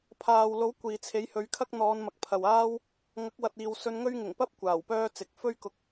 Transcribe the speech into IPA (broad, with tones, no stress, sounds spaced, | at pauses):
pʰ aː˨ w l o˨˥ w kʷ iː˨ t͡sʰ e˨˥ j h ɵ˨˧ ɥ kʰ ɐ˥ k̚ n̪ ɔː˨˧ n m ɐ˨ k̚ pʰ ɐ˨ w aː˥ w | ŋ ɐ˨˥ k̚ w ɐ˨ t̚ iː˨ w s ɵ˧ n ŋ ɵ˥ ɥ ŋ ɪ˨˩ ŋ p ɐ˥ p̚ kʷ aː˨˩ w p œː˥ t͡s ɪ˨˥ k̚ f ɵ˥ ɥ k ʊ˨˥ k̚